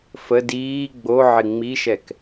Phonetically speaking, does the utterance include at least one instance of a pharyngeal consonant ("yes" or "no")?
yes